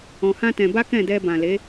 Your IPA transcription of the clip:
ɔ̃˧hã˦tɛ̃˧ ba˦kɛ̃˦˨dɛ˧ bã˨le˨˦

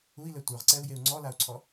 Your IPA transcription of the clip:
ui̯lɛ tʷə˞ʁǀɛu̯jeu̯ ŋ͡ǀɔlau̯ǀʰɔ

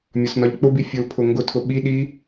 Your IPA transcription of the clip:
mʲɒsnɒʎk͡pʊbi fʲʊlpʰʊ ŋɡʊtʰʊ ɓiɗi

